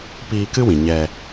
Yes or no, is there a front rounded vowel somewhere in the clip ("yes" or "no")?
no